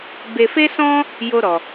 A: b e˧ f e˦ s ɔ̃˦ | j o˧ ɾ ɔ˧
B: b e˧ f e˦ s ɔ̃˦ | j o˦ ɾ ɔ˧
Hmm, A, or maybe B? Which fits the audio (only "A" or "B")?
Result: B